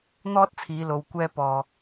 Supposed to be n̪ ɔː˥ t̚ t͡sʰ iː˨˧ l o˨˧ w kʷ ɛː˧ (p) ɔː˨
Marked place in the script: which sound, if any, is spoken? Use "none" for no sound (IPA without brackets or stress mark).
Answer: p